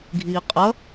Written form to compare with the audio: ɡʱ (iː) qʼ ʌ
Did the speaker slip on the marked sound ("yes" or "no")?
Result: no